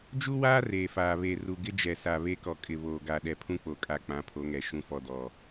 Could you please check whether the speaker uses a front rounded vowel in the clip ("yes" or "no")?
no